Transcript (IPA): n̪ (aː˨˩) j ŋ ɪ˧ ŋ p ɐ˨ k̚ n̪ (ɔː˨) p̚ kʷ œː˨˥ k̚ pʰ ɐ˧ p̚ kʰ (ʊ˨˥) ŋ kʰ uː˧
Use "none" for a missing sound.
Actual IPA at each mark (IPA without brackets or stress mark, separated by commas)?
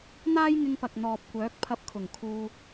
aː˥, ɔː˨, ʊ˨˩